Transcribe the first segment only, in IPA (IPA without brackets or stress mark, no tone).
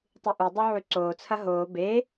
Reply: tˤ